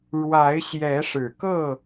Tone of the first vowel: rising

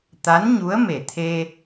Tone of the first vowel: rising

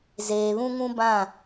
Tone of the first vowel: low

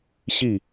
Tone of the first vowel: falling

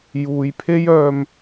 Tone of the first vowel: low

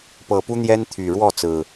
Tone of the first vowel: low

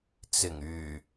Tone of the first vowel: low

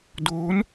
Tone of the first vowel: rising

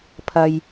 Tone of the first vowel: low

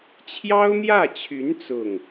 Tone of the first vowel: high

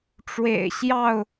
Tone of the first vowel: low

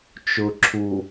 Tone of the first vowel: low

